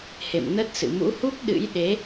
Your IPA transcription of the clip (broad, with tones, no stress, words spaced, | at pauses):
hḛ˧˨mnə˦˥t̚sɨ̰˧˨ mṵ˧˥hu˦˥k̚ɗɨ̰˧˥jɗe˨˦